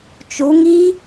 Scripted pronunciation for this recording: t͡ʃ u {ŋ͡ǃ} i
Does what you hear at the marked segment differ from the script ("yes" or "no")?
yes